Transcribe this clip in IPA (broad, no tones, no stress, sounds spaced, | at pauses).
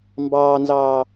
m b ɑː n z ɑː